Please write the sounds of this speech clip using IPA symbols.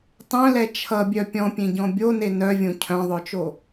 tˤœ̃lɛ t͡ʃʰʌbʲœ pʲɔ̃pʲẽɟɔ̃ bʲone nœvʲõ cʰœ̃ðˤœt͡ʃo

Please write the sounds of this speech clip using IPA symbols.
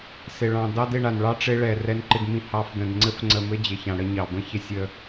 sɪ˨ ɭɑ̃˨ dɑ˦dɪ˧ɳa˨nɭɑ˦ ʈ͡ʂɪ˦ ɭɛ˨rɛ˧nǃɪ˧dmĩ˧ hɑ˧f də̃˨dŋ͡ǀɘ˧fŋ͡ǀə˨mɘ˧ d͡ʑɪ˨çã˨ ɽə˧ɲɑ˨ bə̃˦ çɪ˧sʲə˧

